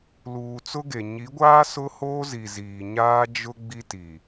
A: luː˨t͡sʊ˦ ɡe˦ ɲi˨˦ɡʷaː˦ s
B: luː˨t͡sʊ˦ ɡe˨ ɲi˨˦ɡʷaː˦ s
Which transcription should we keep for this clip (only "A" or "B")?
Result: B